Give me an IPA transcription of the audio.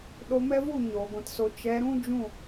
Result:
ɗo˧mɛ˦vu˦˨ ɲoː˨ɡʷɛ̃˧tso˧ t͡ʃɛ˨˦ɾũ˦ d͡ʒũ˦˨

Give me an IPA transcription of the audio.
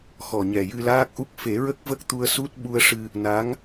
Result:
xɔ˨˩ɲɛ˨˩jɨ˧ laː˦˥k̚ʔu˦˥k̚ fe˨˩˦ɹə˦˥k̚və˦˥k̚t̪u˧ə̯ su˦˥t̚ ɓu˧ə̯ʂɨ˧ | na˧˥ŋ

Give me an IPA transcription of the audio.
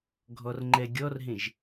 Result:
ɡʱɔrŋ͡ǃɛɡʲɔrɦẽʒ

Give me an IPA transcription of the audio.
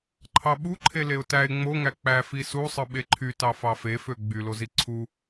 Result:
ǃʰɑɓuǃʰe leʊ̯tæɪ̯ ŋ͡moŋæ k͡pæfi susˤɯ ɓeǃʰy tɑfɑfefø ɡ͡bylozi ǀʰu

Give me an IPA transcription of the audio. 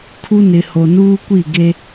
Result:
kʰu˦nɪ˨ho˨ nuː˦kʷi˦˨ɡe˦

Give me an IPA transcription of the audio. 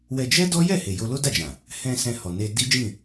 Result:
wɛ˧d͡ʒɛ˦dɔ˦ jɛ˦˨he˨ jo˧lo˦da˦˨d͡ʒã˨ | hɛ̃˧ sɛ̃˧hɔ˨ne˧ di˦d͡ʒĩ˦˨

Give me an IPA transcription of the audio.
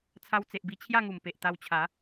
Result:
t͡sʰa˧wt͡se˨ʔbi˧ t͡ɕʰja˥˧ŋu˨˩m pe˨ʔt̪a˧wt͡ɕʰa˨˦

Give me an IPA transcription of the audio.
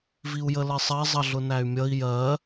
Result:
viu̯jəlɜsˤɜ zˤʌɮʊnæy̯mʲʌi̯ jɜ

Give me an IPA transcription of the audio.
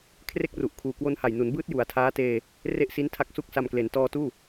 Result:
kʰre˥˩k̚ru˨˩ʔkʰuː˨˩ kwo˧nha˨˩jnu˩˦nbɯː˦˥t̚ ju˨˩a̯tʰaː˦˥teː˧ | re˥˩ʔsi˦˥ntʰa˦˥k̚su˦˥k̚ sa˨˩mkle˩˦n tɔː˧tuː˥˩

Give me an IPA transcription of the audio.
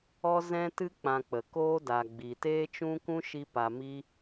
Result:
ɔ˦zɛ̃˦tɨ˦ k͡pã˧k͡pə˨ koː˦da˨ɡ͡bi˨ teː˦t͡ʃũ˦kũ˦ʃi˧ pa˨ mi˦

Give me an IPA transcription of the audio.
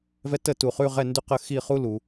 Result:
vɛ˧ tə˧˩ tu˧˩χʉ˥˧ ʁɛ˥˧ndʉ˥˧qə˥˧ xi˥˧χu˥ lu˩˧

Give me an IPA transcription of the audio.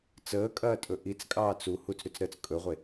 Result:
t͡səːkʼɐːtʼɵ ʔit͡skʼɑːt͡s u hut͡sɾʉt͡sɾəːt͡s kʼɵʁʷe

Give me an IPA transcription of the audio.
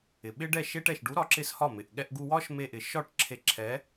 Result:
ɪ˨ɓɪ˦ɖɛ˦˨ ʃe˦ʈɛ˨ʃ ɖu˨˦ɾɒ˨˦ǁɪ˧s hɒ˦˨mɪ˨ʔ ɠɛ˧ʔɡu˧wɒ˦ʃ me˧ʔɪ˨ʃɒ˦˨ʈ ǁʰe˧ ǁʰɛ˨˦

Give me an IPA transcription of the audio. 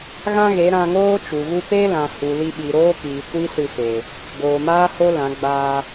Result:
ɣã˦ɣe˨˦ ɾã˧ŋoː˦ t͡ʃu˨ɣu˦ pe˦lã˨ hu˨li˧ɓi˨ɾoː˦ kiː˨kʷi˦sɨ˧fe˨ | ɡoː˨maː˦ho˦ lã˨˦ ɡ͡baː˧

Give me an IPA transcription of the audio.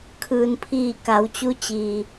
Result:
kʰɯː˩npʰiː˧˩ ka˩˧wt͡ɕu˧˥ t͡ɕi˩

